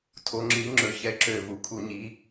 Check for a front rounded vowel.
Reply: present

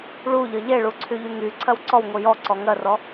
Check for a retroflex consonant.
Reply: present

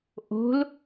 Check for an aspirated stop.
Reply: absent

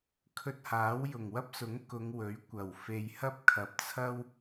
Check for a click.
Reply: absent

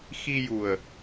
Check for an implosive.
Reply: absent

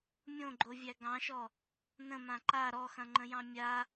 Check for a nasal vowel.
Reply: present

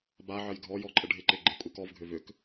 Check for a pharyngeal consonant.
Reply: present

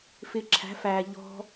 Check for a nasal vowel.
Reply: absent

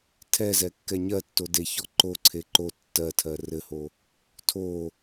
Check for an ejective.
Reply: absent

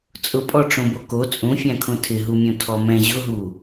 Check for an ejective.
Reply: present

